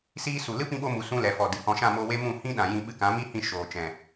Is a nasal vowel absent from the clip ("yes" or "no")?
no